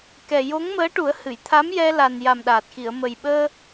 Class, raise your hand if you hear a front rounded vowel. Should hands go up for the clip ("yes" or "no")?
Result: no